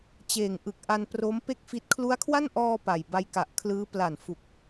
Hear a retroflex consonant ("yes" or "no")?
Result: no